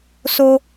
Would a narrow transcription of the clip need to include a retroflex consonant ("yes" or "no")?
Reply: no